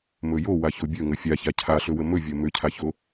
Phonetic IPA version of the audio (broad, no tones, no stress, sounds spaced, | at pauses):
m ɵ j o w a ç o bʲ ɵ ŋ ə fʲ a ç a cʰ a ɬ ɵ w ə m ɵ vʲ o m ʏ cʰ a ç o